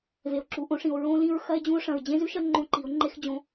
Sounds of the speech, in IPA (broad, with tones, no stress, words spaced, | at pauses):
ve˩o̯ǁu˩˧ʔõ˩˧ʂĩ˩o̯ ɹõ˧˥lĩ˧ɹxɐ˥e̯ d͡ʑũ˧o̯ʂɐ̃˩ɹ d͡ʑẽ˥zʉ˥ʃɐ˥ ŋ͡ǃõ˧ǃi˩˧o̯ ŋ͡ǃe˥xd͡ʑõ˧˥